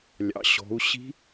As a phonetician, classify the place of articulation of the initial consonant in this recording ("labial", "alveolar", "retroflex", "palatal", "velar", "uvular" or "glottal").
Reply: alveolar